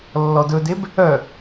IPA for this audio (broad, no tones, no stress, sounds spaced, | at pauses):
lː ɔ d ɵ d e b | œ